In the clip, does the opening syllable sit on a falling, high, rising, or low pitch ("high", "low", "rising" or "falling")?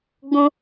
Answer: high